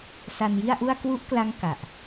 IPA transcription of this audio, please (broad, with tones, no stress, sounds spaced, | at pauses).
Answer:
s a˧ n j i˥˩ a̯ ʔ u˥˩ a̯ k w u˦˥ ʔ k l a˦˥ ŋ k a˨˩ ʔ